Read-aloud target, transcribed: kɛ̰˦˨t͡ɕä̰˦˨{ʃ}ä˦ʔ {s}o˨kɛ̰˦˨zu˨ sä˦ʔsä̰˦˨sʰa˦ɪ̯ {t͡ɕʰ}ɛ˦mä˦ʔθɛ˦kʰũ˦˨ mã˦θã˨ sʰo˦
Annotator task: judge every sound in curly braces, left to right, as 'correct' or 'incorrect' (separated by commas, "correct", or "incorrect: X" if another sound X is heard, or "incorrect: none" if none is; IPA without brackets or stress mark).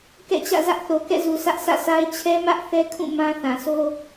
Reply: incorrect: z, incorrect: θ, correct